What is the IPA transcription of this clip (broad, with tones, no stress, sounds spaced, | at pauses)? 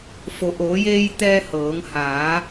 f o˩ ʔ oː˩˧ j eː˧ j t̪ ɛː˧ h ɤː˩˧ ŋ h aː˩˧